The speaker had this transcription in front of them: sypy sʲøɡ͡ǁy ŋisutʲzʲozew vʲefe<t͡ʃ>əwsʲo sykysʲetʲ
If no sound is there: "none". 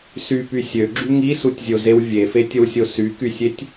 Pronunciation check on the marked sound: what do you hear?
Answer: tʲ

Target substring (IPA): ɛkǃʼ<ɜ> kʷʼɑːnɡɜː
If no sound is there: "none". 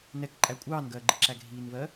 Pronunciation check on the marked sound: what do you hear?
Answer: æ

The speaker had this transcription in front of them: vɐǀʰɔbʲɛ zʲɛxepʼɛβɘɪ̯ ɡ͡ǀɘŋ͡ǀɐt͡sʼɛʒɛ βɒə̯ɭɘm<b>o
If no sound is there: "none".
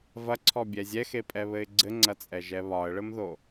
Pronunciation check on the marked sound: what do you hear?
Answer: ð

